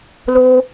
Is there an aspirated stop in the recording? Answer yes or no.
no